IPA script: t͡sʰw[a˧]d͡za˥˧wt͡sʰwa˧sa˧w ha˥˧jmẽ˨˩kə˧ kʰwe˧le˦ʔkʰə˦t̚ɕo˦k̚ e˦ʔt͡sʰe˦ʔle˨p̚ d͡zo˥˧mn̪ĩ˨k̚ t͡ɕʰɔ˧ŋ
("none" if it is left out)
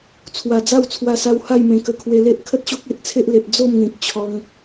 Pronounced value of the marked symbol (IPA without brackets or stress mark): a˨˩